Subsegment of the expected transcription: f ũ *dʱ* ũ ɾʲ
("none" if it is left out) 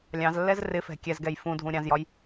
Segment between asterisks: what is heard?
dʱ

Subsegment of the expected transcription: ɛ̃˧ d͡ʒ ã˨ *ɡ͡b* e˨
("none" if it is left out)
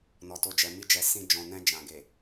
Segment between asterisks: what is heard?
ɡ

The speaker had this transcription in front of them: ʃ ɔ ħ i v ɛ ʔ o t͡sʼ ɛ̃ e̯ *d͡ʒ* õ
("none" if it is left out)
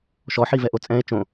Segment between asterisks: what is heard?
t͡ʃ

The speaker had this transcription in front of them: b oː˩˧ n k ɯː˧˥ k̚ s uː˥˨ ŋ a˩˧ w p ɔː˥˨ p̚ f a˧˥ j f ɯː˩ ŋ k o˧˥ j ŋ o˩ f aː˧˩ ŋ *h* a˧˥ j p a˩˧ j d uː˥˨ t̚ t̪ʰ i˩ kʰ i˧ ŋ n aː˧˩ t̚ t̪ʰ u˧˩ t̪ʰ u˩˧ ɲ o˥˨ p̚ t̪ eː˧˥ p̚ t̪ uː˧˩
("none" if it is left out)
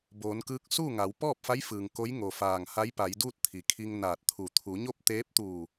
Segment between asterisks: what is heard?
h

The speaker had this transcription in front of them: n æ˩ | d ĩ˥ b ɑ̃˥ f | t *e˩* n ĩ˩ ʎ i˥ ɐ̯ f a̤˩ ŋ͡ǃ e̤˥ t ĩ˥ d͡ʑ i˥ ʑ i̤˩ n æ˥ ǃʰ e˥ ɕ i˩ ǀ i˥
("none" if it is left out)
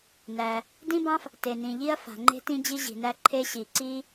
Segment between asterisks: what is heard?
e˩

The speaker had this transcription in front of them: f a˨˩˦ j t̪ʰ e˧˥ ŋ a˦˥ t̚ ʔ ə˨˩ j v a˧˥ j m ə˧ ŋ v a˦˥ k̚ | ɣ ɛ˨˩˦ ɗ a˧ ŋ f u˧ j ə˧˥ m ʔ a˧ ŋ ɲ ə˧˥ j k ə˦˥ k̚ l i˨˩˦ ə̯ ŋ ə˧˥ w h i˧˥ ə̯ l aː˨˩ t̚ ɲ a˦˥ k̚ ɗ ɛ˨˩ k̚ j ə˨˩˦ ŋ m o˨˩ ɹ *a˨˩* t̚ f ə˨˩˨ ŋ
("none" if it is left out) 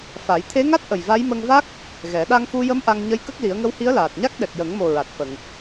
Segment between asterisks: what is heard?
a˨˩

